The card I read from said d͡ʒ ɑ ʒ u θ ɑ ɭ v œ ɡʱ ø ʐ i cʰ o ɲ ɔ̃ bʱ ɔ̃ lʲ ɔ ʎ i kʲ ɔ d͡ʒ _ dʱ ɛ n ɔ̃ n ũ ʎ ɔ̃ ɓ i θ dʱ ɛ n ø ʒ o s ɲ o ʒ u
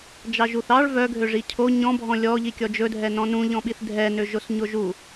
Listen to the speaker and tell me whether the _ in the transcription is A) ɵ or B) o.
A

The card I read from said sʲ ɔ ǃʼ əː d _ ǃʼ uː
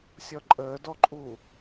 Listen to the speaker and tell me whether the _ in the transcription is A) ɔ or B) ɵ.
A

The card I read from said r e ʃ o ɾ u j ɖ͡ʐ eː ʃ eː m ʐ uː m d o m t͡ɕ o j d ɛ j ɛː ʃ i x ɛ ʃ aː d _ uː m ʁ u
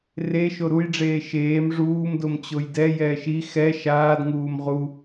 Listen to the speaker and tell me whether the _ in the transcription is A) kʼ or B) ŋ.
B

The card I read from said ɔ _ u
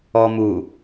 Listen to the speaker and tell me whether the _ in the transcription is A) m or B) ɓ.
A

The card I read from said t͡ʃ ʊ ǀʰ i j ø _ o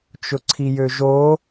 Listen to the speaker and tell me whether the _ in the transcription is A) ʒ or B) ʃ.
A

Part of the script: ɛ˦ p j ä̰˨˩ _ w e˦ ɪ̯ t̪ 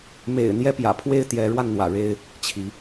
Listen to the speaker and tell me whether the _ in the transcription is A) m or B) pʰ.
B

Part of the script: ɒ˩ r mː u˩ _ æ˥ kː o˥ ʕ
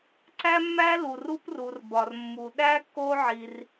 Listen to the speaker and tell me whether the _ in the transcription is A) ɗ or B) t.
A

